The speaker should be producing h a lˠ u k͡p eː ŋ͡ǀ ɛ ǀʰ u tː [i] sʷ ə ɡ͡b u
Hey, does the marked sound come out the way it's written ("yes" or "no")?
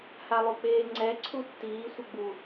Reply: no